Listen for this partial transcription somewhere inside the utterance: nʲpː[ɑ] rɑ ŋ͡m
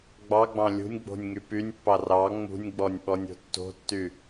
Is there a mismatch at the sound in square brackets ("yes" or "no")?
no